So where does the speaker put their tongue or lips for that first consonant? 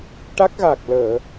retroflex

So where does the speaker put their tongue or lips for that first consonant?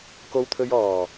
velum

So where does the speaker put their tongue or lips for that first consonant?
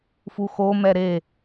lips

